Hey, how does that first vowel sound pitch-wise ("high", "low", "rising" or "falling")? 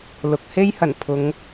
low